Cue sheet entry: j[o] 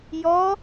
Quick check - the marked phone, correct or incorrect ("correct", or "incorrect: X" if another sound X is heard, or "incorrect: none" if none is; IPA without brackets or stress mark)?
incorrect: ɔ